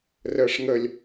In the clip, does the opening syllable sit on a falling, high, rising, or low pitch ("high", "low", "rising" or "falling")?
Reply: low